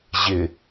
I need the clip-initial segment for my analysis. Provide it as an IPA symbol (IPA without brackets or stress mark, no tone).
ʑ